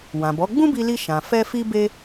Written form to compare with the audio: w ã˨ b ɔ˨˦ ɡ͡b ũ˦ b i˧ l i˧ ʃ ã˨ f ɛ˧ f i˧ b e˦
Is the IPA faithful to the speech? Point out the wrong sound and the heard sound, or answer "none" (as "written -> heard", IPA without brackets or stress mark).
e˦ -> e˧